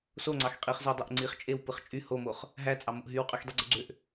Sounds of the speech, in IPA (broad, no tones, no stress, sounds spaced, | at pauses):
s o ŋ͡ǀ ɑ x qʼ i χ z o dˤ o ʔ ŋ͡ǀ i χ t͡ʃʼ e w p ɯ χ t͡ʃʼ y h o m o χ | ɦ æ t͡sʼ ɑ m o ʔ ɦ y w qʼ y x dˤ i ɡ͡ǀ u ɡ͡ǀ ø ʔ